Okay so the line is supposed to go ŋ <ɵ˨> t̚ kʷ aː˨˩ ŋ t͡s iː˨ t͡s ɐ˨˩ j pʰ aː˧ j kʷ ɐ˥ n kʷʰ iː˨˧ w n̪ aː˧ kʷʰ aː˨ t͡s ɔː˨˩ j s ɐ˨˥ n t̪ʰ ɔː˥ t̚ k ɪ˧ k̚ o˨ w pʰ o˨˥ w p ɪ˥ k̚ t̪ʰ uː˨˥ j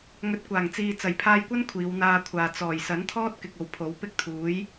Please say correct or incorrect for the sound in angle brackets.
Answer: correct